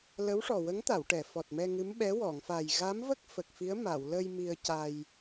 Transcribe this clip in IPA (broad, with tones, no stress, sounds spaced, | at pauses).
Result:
l ə˧˥ w ʂ ɔ˨˩ w ə˧˥ ŋ t̪ a˨˩˨ w ʈ ɛ˨˩˨ f ɔ˨˩ t̚ m ɛ˧ ŋ ɨ˧˥ m ɓ ɛ˧˥ w ɔ˨˩˨ ŋ f a˨˩ j ɣ a˧˥ m v ə˦˥ k̚ f ə˨˩ k̚ f i˧˥ ə̯ m a˨˩˨ w l ə˧ j m i˧ ə̯ c a˧ j